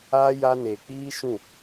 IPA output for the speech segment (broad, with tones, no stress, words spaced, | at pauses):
aː˦ja˦ neː˨k͡piː˦ʃũ˦˨